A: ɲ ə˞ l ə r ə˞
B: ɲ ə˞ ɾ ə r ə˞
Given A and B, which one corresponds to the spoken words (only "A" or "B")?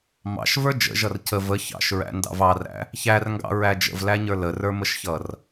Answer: A